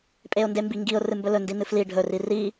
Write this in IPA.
pʼ e ʊ̯ n d e m b i ŋ ɡ i ʊ̯ r ɨ m b ɵ l ɵ n d i n ɨ f l i ɖʱ ɵ r i r i

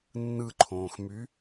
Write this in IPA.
nː ɯ ǃʰ õː x m y

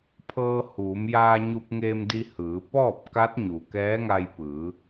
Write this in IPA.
pʰ ɤː˧ h uː˩˧ m j aː˧ ɲ u˧ p̚ ŋ eː˧ m d i˧ h ɯː˩˧ p ɔː˥˨ p̚ k a˧˥ t̚ ɲ u˩ k ɛː˧˥ ŋ a˧ j p ɯː˩˧

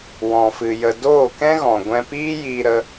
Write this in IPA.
w ɔ̃˨ f ɨ˨ j ə˨ d oː˦˨ k ɛ̃˦ ɣ ɔ̃˨ ɡʷ ɛ̃˧ p iː˦ j iː˧ ɾ ə˧

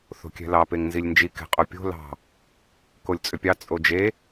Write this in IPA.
θ o̤ kʲ ɛ̤ l ɑ p e ŋ n z i lʲ n d͡ʒ i k ɛ̤ qʼ o pʲ o̤ l ɑ̤ | k o lʲ t͡sʼ ʏ pʲ ɑ t͡sʼ o d͡ʒ e

